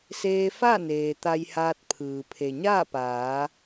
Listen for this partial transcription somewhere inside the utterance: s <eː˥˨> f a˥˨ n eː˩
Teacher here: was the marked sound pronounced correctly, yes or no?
no